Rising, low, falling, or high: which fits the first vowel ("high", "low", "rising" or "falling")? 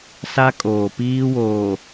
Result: high